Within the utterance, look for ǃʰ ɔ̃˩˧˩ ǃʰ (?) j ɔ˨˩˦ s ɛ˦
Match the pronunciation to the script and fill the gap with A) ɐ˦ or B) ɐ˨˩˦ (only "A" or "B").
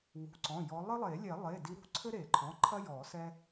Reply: A